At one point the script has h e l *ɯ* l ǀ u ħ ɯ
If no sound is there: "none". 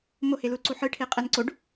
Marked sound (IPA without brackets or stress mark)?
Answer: u